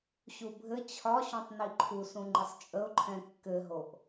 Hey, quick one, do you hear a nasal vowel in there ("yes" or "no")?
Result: yes